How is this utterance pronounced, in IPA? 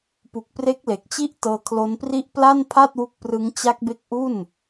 pu˨˩k̚pre˦˥k̚le˨˩k̚t͡ɕi˥˩ʔ tɤː˧kʰlo˦˥npri˥˩ʔ pla˥˩npʰa˥˩t̚wu˦˥k̚prɯ˦˥ŋ t͡ɕa˦˥k̚be˦˥k̚ ʔu˥˩n

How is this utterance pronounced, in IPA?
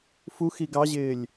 fuxi ɡɑʑɪːlʲ

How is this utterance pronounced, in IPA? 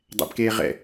dˤɛ̰bkeː ʁɛ̰

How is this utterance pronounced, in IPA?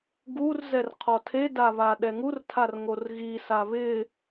ɡur zɛrqʰɔtʰeda βaɗɛŋurtʰar ŋorɣisa βɪ

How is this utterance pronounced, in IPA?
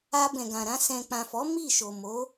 a˧bɛ̃˨ɡã˨ɾã˧ sɛ̃˨k͡pã˨fɔ˨˦ mi˦˨ʃo˨mo˨˦

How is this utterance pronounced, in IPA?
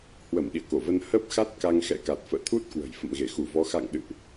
hwə˧˩m ɗḭ˧˨ə̯ko˧˩və˧n hə˦˥p̚ xa˦˥t̚ka˧ŋ xɛ̰˧˨ka˨˩t̚fə̰ː˧˨ t̪ʰu˦˥t̚kwə̤˨˩j fə̰˧˨mɣe˧˩xu˧˩vɔ˨˦ xa̰˧˨ŋɗɨ̰˧˨ʔ

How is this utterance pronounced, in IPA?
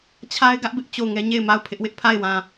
t͡ɕʰa˦ɪ̯ɡä˦ʔ bɪ˦ʔt͡ɕo˦˨ʊ̯ŋɛ˦ ɲe˦˨ɪ̯ma˦˨ʊ̯ pʰɪ˦ʔwɪ˦ʔ pʰa˦˨ɪ̯wã˨

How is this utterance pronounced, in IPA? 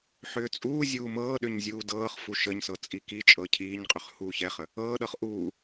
ħʏːt͡sʼuːzʲuː mɤːɗʏɲ zʲuːdɤːχfu ʃəɲsɤ t͡sʼikit͡ʃʼɤ cʰiːɲqʼʏχ huːçɛχə | ɤːɗɤχ ʔuː

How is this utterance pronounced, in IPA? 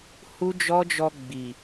hu˦d͡ʒɔ˦d͡ʒɔ˧ ɡ͡bi˨

